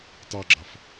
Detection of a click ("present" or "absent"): present